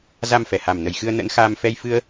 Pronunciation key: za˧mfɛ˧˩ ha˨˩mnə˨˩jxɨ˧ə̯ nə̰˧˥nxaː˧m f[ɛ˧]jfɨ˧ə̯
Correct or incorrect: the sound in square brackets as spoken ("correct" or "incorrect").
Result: correct